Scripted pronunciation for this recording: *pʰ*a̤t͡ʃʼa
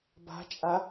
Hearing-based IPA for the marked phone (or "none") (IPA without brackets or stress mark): b